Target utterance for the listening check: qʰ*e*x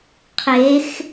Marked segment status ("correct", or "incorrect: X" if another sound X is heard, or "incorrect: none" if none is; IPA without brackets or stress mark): correct